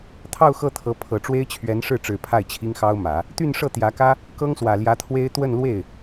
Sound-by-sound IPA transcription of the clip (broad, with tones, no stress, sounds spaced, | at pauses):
t̪ʰ ɑ˥˧ ʊ̯ x ɤ˥˩ t̪ʰ ɤ˧˥ pʰ ɤ˨˩ ʈ͡ʂ w e˥ ɪ̯ t͡ɕʰ ɥ ɛ˧˥ n ʂ ɻ̩˥˩ ʈ͡ʂ ɻ̩˨˩ pʰ a˥˩ ɪ̯ t͡ɕʰ i˥ ŋ x ɑ˥ ʊ̯ m ä˨˩˦ | t̪ y˥˧ n ʂ ɤ˥˩ t̪ j ä˧˥ k ä˥ | k ɤ˥ ŋ s w ä˨˩ l j ä˧˥ t̪ʰ w e˥ ɪ̯ t̪ w ə˥˧ n l w e˥˩ ɪ̯